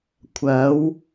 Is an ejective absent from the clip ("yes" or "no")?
yes